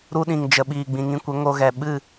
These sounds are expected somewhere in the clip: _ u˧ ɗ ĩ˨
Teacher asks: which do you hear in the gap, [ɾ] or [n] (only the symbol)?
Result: ɾ